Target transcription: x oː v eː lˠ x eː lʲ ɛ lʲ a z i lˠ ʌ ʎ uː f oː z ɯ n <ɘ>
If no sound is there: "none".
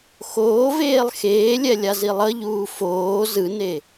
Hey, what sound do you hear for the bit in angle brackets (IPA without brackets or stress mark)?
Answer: e